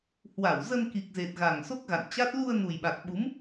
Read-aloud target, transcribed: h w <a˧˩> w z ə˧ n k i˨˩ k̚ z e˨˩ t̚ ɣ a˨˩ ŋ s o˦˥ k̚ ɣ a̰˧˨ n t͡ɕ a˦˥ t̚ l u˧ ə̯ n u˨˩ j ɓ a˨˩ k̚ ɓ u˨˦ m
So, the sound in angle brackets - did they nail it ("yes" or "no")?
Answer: yes